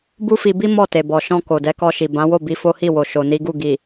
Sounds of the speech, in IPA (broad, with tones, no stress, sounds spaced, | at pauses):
b u˦ f i˧ b i˦ m ɔ˦˨ t e˨ b ɔ˨ ʃ ɔ̃˧ k o˨ d ɛ˧ k ɔ˧ ʃ i˨ b ã˨˦ w o˦˨ b i˧ f o˦ h i˦˨ w o˨ ʃ o˨ n i˨˦ ɡ u˦˨ ɡ i˨